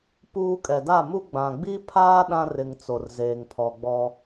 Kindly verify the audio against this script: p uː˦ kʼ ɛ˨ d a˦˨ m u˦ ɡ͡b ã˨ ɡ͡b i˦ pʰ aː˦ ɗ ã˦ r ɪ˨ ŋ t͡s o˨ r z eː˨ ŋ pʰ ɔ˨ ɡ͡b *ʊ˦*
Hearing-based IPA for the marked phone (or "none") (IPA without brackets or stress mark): ɔ˦